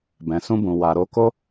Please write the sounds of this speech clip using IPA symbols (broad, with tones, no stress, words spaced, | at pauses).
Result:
bɛ̃˨sũ˧bũ˨ wa˨ɾo˧ko˦